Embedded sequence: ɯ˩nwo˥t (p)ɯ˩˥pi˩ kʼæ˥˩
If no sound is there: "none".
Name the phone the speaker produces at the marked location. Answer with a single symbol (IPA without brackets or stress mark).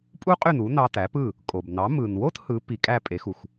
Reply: h